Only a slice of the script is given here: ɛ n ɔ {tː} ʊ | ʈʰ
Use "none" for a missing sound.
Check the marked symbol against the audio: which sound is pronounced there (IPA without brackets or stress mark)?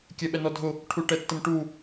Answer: dʱ